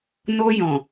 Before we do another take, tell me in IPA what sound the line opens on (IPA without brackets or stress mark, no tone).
n